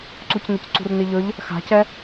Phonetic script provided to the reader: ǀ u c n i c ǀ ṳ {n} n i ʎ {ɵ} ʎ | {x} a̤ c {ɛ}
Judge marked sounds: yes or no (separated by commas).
no, yes, yes, yes